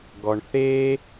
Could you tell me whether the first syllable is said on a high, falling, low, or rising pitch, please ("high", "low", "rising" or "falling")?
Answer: low